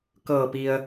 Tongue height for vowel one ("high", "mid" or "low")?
mid